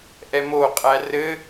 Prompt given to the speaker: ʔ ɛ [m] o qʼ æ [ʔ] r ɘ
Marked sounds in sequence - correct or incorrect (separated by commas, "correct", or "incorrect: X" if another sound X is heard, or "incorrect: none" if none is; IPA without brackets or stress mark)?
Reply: correct, incorrect: none